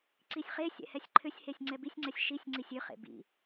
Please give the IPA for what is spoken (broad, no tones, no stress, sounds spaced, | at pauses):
ǀ i sʲ χ e sʲ ɛ̰ h ɛ sʲ ǃʰ ʏ sʲ h e sʲ ŋ͡ǀ ɛ b i sʲ ŋ͡ǀ ɛ sʲ ʃ i sʲ ŋ͡ǀ i sʲ ʏ χ ḛ b ḭ